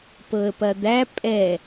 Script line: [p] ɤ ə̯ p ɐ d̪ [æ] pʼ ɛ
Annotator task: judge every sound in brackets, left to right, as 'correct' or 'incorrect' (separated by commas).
correct, correct